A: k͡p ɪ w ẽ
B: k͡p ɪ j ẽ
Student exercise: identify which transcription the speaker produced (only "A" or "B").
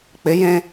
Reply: B